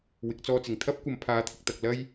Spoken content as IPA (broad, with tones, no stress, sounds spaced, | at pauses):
w ɪ˨˥ k̚ t͡s ɔː˧ t͡s ɪ˨˩ ŋ t̪ʰ ɐ˥ p̚ kʷ ɐ˨ m pʰ aː˨˥ t̪ʰ ɪ˨ k̚ t̪ ɐ˨ k̚ l ɐ˥ j